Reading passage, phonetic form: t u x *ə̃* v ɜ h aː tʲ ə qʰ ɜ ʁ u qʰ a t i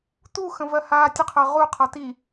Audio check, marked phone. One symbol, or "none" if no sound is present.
ə̃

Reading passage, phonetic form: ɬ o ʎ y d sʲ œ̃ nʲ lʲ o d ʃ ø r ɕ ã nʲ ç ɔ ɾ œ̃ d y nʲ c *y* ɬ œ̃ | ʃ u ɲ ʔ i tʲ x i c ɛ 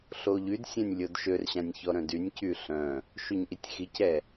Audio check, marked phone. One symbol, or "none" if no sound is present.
y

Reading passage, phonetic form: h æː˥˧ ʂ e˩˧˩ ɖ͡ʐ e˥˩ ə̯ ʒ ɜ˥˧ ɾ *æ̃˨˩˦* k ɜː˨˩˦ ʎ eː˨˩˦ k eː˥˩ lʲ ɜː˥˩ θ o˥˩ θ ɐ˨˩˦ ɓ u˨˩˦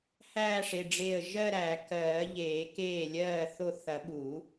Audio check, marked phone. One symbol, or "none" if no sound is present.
æ˨˩˦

